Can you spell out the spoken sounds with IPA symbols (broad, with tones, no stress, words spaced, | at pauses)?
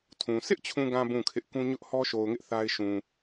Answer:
tʰũ˨ sɪ˦ʔt͡ɕʰũ˨ɡã˨ bũ˦˨kʰɪ˦ʔ kũ˦ ɲʊ˦ʔhɔ˦ʃo˨ʊ̯ŋɪ˦ʔ θa˦ɪ̯ʃũ˨